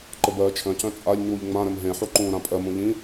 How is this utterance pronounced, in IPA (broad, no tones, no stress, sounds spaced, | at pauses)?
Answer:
ǃ ə b ɜː t͡ʃʰ œ̃ c œ̃ t͡sʼ a ʎ ɲ uː ʎ ŋ͡m ã ɾ ɘ m ɦ ẽ ħ u ǃ ũː ɾ ã pʼ ɜ m ũ ʎ ĩ